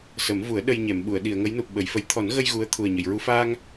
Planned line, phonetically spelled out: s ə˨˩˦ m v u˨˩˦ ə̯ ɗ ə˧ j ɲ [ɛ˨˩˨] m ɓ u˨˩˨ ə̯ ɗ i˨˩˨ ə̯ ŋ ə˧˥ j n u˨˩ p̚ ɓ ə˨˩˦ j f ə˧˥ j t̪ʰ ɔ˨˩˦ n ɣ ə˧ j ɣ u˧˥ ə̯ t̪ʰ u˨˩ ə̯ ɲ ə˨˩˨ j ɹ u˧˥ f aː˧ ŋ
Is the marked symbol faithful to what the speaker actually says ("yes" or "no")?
yes